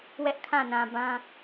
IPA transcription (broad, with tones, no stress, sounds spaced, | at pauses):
w ɛ˦ ʔ kʰ ã˦˨ n ã˨ b ã˦